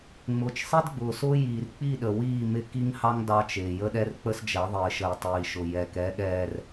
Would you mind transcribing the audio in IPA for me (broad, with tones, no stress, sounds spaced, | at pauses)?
ŋ͡m ʊː˨ t͡ʃ sˤ i˦ d ɡ͡b ʊː˨ s ʊː˦ j iː˨ r k͡p i˦˨ ɗ ə˨ w iː˦˨ m ɪ˦ k i˦ ŋ h ɑ˦ ŋ d ɑ˦ t͡ʃ ɪː˨ j ə˦ ɗ ɛ˦ r k͡p ə˦ s d͡ʒ ɛ˨˦ ðˤ ɪː˨ ʃ ə˨ j tˤ iː˨ ʃ ʊ˨ j ɛ˨ k ɛ˨˦ ɠ ɛː˨ r